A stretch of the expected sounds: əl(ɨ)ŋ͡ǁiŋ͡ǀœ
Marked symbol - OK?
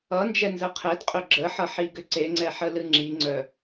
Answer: yes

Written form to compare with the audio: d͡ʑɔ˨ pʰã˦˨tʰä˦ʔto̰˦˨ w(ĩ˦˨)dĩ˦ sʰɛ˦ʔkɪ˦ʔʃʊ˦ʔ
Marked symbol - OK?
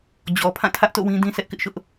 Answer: no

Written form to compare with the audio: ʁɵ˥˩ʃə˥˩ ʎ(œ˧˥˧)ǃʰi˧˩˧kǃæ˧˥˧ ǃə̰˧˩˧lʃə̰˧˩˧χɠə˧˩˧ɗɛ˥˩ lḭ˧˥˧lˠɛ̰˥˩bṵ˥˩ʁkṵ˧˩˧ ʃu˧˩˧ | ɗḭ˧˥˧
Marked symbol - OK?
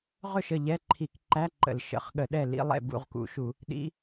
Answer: no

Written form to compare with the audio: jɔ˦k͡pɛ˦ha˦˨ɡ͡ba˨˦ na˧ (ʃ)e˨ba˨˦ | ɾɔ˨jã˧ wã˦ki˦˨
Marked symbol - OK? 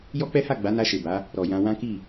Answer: yes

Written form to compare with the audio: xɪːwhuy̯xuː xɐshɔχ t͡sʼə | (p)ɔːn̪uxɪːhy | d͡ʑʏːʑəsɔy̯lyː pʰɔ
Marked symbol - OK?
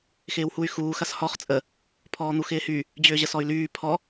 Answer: no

